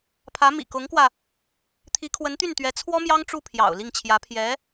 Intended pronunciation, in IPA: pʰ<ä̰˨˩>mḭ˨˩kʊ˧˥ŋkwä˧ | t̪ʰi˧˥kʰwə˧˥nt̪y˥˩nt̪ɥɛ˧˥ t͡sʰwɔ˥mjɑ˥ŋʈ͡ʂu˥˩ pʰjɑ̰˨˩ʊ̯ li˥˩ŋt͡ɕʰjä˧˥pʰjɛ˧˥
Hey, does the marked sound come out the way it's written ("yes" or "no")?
no